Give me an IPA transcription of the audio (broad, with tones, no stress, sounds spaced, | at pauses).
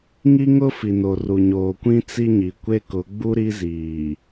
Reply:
ŋ i˦ ŋ ʊ˦ f i˨ n o˨ r u˨ ɲ oː˨ kʷ ĩ˦ t͡s i˦ ɲ i˨ kʷ e˦ k ʊ˨˦ ɡ͡b u˦ ɾ i˦ z iː˨